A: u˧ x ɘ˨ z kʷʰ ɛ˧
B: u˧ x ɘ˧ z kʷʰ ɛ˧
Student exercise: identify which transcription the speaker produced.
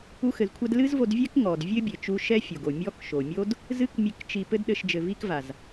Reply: A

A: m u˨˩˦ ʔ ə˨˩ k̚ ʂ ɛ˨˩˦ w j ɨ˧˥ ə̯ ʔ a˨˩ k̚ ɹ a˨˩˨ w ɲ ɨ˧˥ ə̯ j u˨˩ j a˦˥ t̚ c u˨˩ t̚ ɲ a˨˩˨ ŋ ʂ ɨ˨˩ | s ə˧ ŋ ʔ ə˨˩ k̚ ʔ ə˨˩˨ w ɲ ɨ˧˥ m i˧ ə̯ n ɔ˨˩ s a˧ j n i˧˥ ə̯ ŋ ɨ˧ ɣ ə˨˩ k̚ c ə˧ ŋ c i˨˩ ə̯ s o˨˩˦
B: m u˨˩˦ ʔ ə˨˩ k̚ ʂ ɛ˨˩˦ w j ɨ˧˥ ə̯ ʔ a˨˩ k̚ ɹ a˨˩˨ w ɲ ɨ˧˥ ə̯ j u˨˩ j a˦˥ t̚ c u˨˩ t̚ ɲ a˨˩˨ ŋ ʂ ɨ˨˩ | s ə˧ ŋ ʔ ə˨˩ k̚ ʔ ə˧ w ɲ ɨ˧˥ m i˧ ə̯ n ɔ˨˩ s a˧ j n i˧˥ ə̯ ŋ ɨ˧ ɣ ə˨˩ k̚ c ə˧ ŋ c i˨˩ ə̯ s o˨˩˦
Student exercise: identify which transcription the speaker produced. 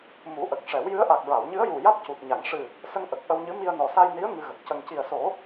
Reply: B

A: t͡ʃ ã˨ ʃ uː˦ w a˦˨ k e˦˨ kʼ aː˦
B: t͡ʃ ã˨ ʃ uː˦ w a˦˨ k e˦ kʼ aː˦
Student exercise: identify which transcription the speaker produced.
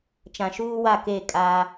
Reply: A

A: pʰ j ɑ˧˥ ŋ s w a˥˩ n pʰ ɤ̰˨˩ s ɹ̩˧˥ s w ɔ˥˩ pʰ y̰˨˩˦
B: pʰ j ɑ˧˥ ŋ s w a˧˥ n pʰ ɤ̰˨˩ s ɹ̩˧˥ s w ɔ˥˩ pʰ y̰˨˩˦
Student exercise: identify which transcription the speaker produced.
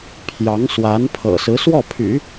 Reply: B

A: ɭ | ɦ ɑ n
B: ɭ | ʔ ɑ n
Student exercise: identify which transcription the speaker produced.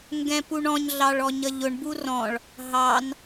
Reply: A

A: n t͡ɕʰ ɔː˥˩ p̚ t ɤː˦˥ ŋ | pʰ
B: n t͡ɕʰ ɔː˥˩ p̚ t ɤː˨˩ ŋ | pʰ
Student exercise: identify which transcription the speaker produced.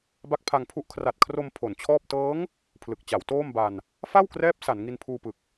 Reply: A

